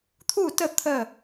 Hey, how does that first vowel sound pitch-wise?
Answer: falling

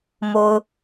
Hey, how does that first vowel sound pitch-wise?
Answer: low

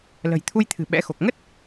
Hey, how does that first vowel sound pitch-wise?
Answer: low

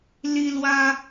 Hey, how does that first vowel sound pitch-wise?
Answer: high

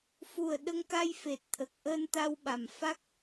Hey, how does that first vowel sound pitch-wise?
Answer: low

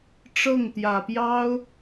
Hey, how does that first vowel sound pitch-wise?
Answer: falling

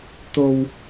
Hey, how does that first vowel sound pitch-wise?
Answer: low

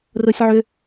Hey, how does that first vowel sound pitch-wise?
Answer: high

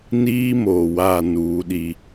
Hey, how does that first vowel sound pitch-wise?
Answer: high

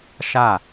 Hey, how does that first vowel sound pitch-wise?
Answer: falling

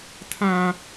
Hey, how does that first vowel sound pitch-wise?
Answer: high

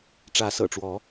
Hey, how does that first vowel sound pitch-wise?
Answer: rising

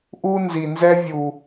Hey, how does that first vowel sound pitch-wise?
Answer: high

